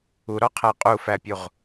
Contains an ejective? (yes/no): yes